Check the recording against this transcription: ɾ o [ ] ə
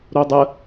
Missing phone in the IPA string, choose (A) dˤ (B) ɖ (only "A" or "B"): A